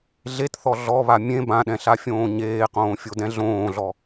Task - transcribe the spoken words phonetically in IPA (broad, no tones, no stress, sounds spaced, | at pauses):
ɮ e t θ ɔ ɮ ɔ β a mʲ ẽ b ã ɗ ɛ̃ ɬ a fʲ õː ɲ eː q õː fʲ o d ɛ̃ ɮ õː ɮ ɔ